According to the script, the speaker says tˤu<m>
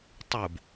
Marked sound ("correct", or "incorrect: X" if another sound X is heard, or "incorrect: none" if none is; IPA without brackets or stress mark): incorrect: b